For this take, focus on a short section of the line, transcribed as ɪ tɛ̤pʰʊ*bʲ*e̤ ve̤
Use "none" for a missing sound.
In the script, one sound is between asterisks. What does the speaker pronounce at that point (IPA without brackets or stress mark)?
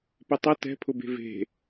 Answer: b